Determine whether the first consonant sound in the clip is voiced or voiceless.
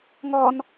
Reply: voiced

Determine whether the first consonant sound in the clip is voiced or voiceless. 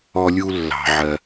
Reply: voiced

